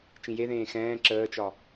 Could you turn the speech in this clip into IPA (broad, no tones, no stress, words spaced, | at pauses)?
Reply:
t͡ʃĩjeðẽː xɛ̃ː ǁəːt͡ʃɒ